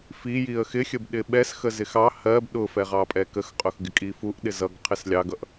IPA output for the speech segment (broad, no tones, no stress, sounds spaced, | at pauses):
f i j i ə̯ x ɪ xʲ ə b ɗ ɪ ɓ ɛ s x ə z ɪ x ɑ h ɜ b ɗ ʊ f ɛ ʁ ɑ pʼ ɛ k ə x qʼ ʊ x ɡ ɪ kʼ i f u ʔ ɗ ɪ z ʌ ɡ qʰ ɪ s lʲ ɑ ɡ ʌ ʔ